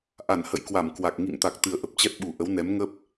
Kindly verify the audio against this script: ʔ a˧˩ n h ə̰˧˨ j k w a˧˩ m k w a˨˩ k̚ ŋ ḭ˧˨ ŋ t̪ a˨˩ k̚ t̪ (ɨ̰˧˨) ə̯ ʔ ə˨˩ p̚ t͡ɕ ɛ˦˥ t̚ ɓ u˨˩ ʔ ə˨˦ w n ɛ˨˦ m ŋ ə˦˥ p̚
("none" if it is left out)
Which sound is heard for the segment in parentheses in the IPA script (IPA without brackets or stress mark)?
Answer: ɨ˨˩